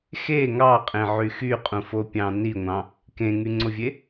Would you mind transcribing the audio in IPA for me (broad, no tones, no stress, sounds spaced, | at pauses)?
x e ŋ ɑ qʼ ẽ ʕ y x y qʼ ũ f o pʲ ɑ̃ n i ŋʷ ɑ̃ | k ẽ ŋ y ŋ͡ǀ o vʲ e